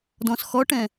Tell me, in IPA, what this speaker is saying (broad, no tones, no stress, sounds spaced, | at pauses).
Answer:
d ɔ̃ s x ɔ ʈ ɛ̃